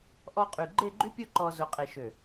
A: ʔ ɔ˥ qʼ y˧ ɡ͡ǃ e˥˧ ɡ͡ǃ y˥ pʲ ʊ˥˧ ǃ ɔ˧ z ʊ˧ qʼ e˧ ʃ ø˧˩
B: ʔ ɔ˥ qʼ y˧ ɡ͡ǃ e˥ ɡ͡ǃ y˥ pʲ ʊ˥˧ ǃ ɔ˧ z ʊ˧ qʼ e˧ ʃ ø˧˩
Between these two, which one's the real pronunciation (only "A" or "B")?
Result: A